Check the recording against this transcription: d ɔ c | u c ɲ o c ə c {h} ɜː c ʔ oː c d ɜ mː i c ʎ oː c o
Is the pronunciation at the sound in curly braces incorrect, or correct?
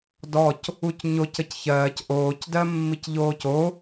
incorrect: ç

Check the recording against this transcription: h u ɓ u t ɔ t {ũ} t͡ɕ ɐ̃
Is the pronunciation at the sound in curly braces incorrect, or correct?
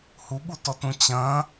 correct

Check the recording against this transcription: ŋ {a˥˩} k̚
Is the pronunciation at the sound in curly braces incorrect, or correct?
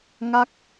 correct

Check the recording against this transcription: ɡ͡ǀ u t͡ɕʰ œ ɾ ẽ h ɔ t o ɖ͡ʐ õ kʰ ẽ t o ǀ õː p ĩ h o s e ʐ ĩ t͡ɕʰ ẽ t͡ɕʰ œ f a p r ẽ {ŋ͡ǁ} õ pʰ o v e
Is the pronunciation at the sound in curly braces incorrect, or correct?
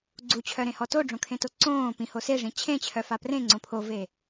incorrect: ŋ͡ǀ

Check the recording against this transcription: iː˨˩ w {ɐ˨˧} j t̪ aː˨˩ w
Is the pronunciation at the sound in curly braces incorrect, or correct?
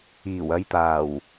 correct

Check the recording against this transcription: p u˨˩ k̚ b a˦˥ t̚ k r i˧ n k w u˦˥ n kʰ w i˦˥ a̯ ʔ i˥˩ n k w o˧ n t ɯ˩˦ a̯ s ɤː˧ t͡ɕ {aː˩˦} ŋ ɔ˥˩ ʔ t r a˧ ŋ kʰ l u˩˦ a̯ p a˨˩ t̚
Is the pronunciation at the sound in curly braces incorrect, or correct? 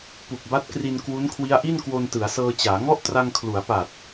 correct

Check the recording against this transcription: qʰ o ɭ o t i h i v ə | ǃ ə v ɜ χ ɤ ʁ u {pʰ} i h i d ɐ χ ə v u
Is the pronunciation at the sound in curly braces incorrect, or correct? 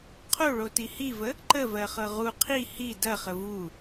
incorrect: qʰ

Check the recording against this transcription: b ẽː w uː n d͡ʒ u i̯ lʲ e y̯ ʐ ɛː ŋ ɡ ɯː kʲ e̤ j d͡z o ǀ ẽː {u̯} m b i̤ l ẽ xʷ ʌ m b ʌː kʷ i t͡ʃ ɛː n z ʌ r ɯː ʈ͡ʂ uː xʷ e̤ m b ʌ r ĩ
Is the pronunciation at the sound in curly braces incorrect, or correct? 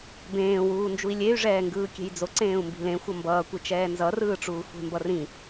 correct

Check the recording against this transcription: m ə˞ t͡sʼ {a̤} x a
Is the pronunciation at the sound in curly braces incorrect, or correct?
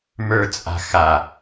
correct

